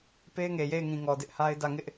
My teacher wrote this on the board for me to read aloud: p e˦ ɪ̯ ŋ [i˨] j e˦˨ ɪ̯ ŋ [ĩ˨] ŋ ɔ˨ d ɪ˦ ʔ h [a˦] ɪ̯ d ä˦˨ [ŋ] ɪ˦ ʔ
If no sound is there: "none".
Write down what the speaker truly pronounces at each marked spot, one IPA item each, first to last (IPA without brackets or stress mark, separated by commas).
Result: e˨, ĩ˨, a˦, ŋ